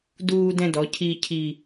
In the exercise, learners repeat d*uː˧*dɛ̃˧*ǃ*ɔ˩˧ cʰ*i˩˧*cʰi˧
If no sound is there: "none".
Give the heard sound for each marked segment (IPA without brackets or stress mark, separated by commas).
uː˧, d, i˧